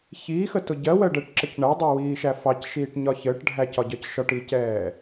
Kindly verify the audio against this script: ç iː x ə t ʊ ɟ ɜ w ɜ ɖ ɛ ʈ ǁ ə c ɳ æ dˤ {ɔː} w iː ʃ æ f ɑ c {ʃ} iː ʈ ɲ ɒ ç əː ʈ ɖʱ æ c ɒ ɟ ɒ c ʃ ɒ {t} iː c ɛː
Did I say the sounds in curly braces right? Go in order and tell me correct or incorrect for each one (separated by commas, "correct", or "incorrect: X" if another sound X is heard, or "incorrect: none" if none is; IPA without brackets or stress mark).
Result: incorrect: əː, correct, incorrect: ʈ